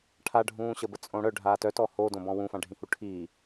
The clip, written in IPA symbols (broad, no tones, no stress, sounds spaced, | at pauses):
ʈʰ a ɖʱ ũː ɕ ə b ə t͡sʼ õ ɽ œ ɖʱ aː t œ t ɔ h o d õ b ɔ̃ w ũ f ã ɖʱ ĩ h u ʈʰ iː